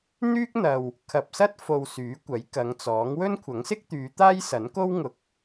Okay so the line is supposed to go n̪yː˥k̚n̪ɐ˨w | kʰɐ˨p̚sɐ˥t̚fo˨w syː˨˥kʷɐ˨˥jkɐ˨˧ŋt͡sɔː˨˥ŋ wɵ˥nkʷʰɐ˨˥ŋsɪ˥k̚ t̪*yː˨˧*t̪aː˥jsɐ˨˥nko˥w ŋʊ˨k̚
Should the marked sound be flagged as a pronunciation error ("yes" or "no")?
no